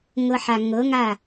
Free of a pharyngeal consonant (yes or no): no